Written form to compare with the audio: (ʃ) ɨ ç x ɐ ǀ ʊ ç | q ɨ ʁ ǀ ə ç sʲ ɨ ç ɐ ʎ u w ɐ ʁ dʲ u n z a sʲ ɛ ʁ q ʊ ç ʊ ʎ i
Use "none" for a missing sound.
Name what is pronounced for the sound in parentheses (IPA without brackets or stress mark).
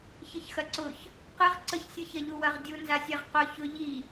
ç